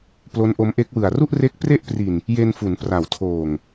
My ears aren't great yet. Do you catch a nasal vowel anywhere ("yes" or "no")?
no